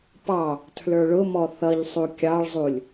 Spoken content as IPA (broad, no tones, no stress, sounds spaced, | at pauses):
p ɑ | tʰ l ə˞ ɭ ʊ m ɔ θ ʌ ʎ sˤ u kʲ ɑ ɭ zˤ u lʲ